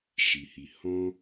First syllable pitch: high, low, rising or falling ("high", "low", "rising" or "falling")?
low